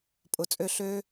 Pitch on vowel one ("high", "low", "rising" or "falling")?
rising